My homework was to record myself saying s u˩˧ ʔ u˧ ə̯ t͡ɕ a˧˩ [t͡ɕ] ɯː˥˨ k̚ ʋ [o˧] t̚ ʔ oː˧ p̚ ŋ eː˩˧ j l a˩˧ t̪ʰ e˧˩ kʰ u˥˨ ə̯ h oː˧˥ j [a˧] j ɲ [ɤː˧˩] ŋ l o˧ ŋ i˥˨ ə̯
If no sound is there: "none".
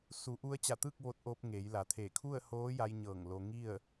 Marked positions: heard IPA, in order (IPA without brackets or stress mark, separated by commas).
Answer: t̪, o˧, a˧, ɤː˧˩